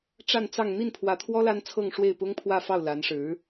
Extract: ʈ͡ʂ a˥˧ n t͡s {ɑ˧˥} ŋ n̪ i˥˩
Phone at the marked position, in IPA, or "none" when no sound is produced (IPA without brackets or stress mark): ɑ˥˧